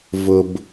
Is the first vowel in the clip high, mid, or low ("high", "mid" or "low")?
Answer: high